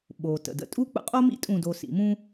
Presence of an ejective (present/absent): present